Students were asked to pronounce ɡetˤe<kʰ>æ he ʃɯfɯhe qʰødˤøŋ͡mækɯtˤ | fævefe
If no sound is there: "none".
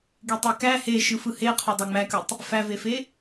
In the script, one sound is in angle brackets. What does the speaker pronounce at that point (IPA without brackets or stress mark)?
k